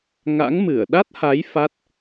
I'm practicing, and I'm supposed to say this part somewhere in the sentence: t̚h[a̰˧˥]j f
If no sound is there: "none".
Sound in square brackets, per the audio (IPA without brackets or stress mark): a˨˦